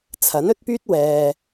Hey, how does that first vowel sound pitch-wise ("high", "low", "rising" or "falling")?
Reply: rising